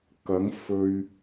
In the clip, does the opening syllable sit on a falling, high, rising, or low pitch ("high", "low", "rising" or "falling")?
rising